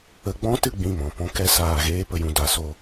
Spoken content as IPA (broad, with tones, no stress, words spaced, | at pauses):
ə˧ɡ͡bɔ̃˦tɨ˦˨ ɡ͡bĩ˦˨mɔ̃˨pɔ̃˦ kɛ˧saː˨ɣeː˧ pə˨jũ˨ da˨so˧